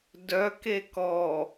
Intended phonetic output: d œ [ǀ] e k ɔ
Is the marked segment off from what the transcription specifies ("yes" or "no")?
yes